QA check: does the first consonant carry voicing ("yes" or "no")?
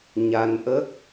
yes